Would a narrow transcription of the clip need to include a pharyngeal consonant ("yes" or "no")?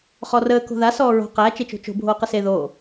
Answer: no